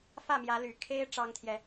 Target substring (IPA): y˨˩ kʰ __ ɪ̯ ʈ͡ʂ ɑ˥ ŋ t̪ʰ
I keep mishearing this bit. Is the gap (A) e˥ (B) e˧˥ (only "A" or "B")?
A